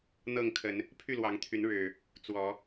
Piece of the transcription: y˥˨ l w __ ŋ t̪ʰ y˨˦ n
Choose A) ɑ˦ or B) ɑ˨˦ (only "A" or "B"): B